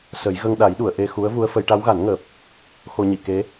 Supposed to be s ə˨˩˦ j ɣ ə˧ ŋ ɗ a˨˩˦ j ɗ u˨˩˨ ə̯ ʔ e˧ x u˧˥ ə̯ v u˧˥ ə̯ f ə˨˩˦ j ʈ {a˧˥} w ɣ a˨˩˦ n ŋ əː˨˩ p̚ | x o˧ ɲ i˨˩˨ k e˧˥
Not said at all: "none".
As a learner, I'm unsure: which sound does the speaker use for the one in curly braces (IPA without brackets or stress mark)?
a˧˥